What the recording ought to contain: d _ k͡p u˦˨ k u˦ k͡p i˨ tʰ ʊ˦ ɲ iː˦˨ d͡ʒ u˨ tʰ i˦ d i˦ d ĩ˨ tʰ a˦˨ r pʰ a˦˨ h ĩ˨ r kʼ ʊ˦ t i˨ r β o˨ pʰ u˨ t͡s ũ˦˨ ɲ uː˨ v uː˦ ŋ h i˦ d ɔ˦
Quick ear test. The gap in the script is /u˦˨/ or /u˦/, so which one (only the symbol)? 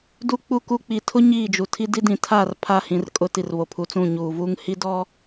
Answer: u˦